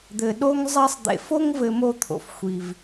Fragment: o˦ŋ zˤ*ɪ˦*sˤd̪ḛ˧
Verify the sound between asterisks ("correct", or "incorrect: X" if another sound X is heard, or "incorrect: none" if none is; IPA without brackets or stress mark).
incorrect: ɛ˦